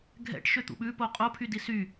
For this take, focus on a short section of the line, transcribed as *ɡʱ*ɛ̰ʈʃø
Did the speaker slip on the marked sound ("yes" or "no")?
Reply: no